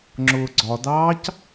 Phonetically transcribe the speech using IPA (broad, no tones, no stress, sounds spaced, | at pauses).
ŋ͡ǁ ʊː ɡ͡ǀ ɒ d ɑː c